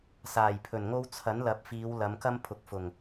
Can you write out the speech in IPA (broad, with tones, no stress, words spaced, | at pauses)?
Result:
saː˨˩jpʰɵ˨˩nŋo˥w t͡sʰɐ˨˥nlɐ˨˥p̚fiː˨˧w lɐ˨˧mkɐ˥mpʰʊ˨k̚ fʊ˨˩ŋ